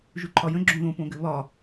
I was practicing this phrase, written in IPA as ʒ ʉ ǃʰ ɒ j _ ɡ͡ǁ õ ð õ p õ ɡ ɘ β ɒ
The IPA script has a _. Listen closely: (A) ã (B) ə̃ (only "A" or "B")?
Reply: B